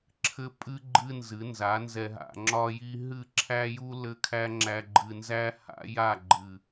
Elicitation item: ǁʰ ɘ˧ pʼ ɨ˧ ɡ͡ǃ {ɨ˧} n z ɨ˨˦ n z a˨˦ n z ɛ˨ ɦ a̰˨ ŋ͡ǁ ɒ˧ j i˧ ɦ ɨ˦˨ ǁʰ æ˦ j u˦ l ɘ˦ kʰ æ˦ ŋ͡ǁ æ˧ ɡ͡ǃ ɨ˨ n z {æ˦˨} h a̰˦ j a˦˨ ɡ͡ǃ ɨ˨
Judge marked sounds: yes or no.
yes, no

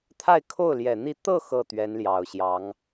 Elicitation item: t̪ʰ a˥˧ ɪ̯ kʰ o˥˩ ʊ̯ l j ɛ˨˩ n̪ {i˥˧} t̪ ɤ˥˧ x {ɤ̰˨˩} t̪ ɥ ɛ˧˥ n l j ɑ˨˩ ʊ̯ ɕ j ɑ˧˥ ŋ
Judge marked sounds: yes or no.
yes, no

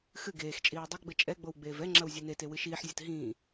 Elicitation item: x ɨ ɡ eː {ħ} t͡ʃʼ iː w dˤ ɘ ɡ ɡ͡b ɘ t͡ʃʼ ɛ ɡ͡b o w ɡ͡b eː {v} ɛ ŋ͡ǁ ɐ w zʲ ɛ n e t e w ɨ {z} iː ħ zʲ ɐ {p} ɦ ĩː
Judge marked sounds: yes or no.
no, yes, no, no

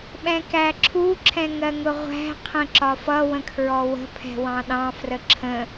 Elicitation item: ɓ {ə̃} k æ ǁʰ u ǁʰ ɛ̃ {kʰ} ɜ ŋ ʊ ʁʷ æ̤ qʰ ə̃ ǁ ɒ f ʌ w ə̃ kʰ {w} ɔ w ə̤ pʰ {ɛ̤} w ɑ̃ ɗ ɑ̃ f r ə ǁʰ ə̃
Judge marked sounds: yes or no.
no, no, no, yes

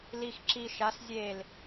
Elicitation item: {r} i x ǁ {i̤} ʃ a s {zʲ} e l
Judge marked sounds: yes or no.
no, no, yes

